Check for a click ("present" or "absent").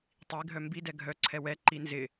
present